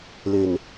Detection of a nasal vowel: absent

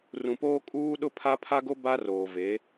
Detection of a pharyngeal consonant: absent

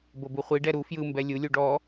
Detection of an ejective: absent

